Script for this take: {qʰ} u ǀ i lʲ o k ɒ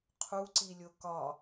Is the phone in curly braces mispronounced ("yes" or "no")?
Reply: no